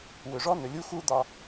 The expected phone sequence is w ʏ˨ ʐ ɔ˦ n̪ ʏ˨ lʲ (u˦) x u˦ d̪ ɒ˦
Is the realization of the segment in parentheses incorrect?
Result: no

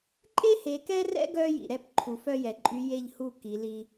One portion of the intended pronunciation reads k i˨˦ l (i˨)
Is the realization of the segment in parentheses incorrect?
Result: yes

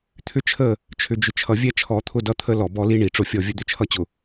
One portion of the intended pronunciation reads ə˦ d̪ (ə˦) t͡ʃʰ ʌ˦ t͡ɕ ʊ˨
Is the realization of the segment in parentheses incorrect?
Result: yes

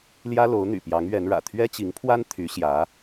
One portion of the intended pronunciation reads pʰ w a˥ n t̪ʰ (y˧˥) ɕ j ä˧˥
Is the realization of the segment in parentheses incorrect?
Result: no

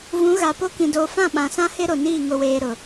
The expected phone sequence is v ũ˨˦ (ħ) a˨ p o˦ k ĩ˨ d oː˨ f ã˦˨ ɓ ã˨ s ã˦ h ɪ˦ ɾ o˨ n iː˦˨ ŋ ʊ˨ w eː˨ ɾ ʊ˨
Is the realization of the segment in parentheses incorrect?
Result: yes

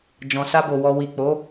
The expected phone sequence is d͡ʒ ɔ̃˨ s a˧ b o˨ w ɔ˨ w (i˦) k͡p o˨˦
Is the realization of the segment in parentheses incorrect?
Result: yes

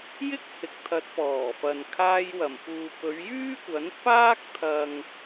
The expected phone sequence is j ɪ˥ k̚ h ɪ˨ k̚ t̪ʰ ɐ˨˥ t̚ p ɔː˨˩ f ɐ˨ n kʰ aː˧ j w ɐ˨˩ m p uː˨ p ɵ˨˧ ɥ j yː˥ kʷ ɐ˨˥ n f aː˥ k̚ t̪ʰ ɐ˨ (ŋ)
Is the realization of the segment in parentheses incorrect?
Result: no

